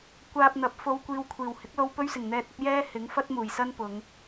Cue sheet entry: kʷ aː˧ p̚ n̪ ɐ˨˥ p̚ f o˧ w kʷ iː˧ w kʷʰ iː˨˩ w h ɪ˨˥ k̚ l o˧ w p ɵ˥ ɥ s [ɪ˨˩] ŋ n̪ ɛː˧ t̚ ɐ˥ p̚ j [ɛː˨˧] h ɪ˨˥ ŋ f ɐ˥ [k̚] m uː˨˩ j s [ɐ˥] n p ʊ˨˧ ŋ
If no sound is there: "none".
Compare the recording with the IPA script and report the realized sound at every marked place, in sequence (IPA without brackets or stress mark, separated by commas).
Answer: ɪ˨˩, ɛː˥, t̚, ɐ˥